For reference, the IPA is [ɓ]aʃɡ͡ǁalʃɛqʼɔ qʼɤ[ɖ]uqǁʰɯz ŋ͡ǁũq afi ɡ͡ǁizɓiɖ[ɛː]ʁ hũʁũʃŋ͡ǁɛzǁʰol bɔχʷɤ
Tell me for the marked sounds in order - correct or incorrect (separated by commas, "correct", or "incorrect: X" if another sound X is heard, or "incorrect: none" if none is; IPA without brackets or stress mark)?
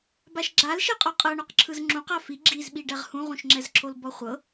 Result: incorrect: b, incorrect: ɳ, incorrect: ɛ